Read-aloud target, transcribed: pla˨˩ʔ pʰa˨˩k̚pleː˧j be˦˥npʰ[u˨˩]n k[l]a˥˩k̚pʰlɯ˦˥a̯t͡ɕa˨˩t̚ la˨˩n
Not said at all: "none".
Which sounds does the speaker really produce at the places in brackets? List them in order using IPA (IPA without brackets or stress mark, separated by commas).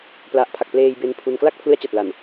u˧, l